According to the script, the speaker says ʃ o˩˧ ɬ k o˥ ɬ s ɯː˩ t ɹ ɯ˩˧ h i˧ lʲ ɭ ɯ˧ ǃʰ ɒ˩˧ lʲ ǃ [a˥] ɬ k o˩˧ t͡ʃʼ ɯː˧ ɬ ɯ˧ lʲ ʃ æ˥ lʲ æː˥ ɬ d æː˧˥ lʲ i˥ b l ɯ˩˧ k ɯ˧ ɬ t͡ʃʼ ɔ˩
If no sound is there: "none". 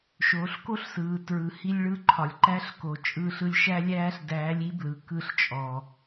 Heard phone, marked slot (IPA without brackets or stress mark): æ˥